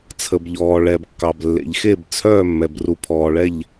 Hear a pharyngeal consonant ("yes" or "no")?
no